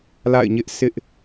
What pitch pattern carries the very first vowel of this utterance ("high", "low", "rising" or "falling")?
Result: falling